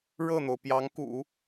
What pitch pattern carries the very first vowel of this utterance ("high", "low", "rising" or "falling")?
falling